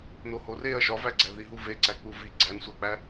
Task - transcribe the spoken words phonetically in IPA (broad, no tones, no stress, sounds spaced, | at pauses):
n o h o r e ɐ̯ ʃ ɒ v æ ɡ͡ǀ æ ð i ɦ u v e ǀ æ k͡p u v i ɡ͡ǀ æ n sʷ æ k͡p æ